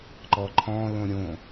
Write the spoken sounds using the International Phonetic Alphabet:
ǃ ɔ ǃʰ ɔ̃ l õ ɾʲ õ

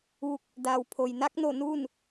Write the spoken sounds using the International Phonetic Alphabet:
ʋ u˧˩ k̚ | d aː˩ w pʰ o˩ j n a˧˥ k̚ n o˧˩ n uː˥˨ n

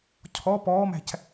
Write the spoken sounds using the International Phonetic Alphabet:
cʰ ɔ p ɔː m æ̤ c

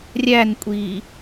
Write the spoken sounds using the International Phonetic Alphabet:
rʲ æ n kʷʼ i

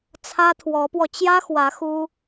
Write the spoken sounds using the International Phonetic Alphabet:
t͡sʰ ä˥ t̪ʰ w ɔ˧˥ p w ɔ˧ t͡ɕ j ä˥ x w ä˧˥ x u˥

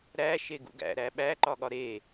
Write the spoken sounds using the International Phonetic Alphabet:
ɾ æ ʃ e ɡ ṵ ɡ æ̰ ɾ æ ɓ æ ǃ ɒ ɠ ɒ ɾ e

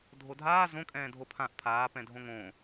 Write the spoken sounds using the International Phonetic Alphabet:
dʱ o dʱ aː z õ kʼ ɛ̃ː dʱ o pʰ ã ʔ pʰ aː p ɛ̃ dʱ õ ŋ õ

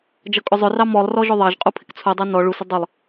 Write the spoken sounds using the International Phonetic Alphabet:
d͡ʒ ʌ kʼ ʊ zˤ ʊ r ɑ m ɔ lˠ r ɔ ʒ ʊ ðˤ ɑ ʒ qʼ u pʰ ɪ k t͡sʰ u dˤ ɑ n ɔ ɭ u s ɪ dˤ ʊ lˠ

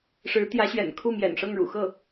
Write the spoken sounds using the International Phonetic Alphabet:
ʂ ɻ̩˧˥ t̪ j ä˧˥ ɕ ɥ ɛ̰˨˩ n kʰ u˥˩ m j ɛ̰˨˩ n ʂ ɤ˥˩ ŋ ɻ ṵ˨˩ x ɤ˥˩

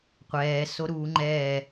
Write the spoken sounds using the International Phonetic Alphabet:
qʷ ɛː s o ɾ uː ŋ͡ǃ ɛː

